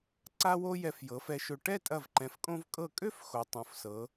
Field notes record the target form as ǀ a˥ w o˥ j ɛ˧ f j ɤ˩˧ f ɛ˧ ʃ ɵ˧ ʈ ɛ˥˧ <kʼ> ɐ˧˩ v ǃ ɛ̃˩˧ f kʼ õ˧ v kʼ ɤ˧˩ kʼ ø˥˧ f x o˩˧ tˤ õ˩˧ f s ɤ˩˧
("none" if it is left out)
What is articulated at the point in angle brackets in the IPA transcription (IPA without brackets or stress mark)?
tʼ